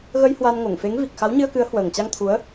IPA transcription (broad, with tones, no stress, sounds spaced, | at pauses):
ɣ ə˧ j h w a˧ n ŋ o˧˩ ŋ f e˨˦ ŋ v i˨˩ k̚ x a˨˦ w ɲ ɨ˧ ə̯ k ɨ˨˦ ə̯ h w əː˨˩ ŋ t͡ɕ a˧ ŋ t̪ʰ u˨˦ ə̯